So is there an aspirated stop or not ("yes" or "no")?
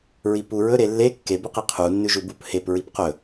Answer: yes